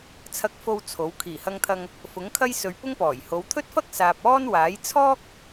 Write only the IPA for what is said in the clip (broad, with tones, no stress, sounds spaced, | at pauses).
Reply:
t͡sʰ ɐ˧ k̚ f o˧ w t͡sʰ o˨˥ w kʰ iː˨˩ h ɐ˧ ŋ t̪ʰ ɐ˧ ŋ | f ʊ˨˥ ŋ kʰ ɐ˥ j s ɵ˨ ɥ p ʊ˥ ŋ p ɔː˨˩ j h o˨˧ w t̪ʰ ɵ˥ t̚ f ɐ˥ k̚ s aː˨ p̚ ɔː˥ n w aː˨˥ j t͡sʰ ɔː˥ k̚